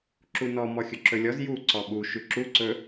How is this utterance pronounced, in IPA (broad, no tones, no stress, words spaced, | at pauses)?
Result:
ǁunɔ mɔxʲɵǁɵlʲɔz ju ǀɔɓu ʃʉǁu ǀɵ